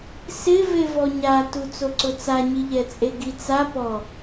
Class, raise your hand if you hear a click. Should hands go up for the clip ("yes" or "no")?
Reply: yes